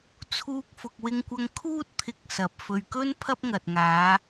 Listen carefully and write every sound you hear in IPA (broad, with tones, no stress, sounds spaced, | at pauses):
t͡sʰ uː˧ k̚ f ʊ˨ k̚ w ɪ˧ ŋ kʷ ɐ˧ ŋ kʰ uː˥ t̚ t̪ʰ ɪ˧ k̚ s ɐ˨ p̚ f ɵ˨ ɥ k ɵ˥ n pʰ ɐ˥ p̚ ŋ ɐ˨ t̚ ŋ aː˨˧